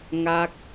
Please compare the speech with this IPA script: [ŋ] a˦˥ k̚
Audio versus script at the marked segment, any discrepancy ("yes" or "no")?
no